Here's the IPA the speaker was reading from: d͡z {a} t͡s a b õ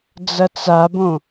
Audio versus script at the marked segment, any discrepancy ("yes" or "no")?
yes